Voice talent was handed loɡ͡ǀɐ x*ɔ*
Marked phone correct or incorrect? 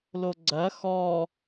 correct